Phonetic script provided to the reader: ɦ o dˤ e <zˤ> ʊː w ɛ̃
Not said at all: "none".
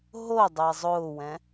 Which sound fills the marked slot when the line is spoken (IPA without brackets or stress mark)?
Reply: zˤ